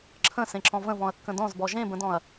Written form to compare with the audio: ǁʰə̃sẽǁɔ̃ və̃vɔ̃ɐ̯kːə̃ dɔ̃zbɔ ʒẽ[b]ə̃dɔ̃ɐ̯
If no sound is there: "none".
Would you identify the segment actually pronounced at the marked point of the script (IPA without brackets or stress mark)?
b